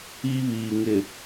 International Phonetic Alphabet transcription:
i˦ β iː˨ ŋ ɪ˨

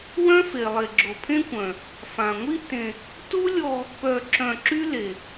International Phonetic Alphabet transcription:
w œ̃˦ f e˨ lˠ e˨ ɡ͡ǁ o˨ pʰ ẽ˦ kʷ œ̃˨ | f ã˨ ŋʷ i˦ t ẽ˧ | t u˦ lʲ ɔ˧ | p œ˧ ǁ œ̃˧ ǁ y˦ l e˨

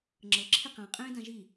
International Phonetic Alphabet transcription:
ŋ͡ǁ ɤ ǁʰ i q ã qʼ ẽː d ã ʒ i

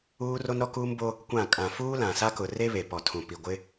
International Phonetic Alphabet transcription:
uː˦ r o˦ n ɾ ɔ˦ k uː˦ m b o˦ | kʷ ã˦˨ kʼ ã˨ f uː˦ l ã˨ s a˦ k ʊ˨ r e˦ β e˨ p ɔ˨ tʰ ũ˨ p i˨ ɡʷ ɪ˦

